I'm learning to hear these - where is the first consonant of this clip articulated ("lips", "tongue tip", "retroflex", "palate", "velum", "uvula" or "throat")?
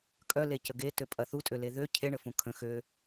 velum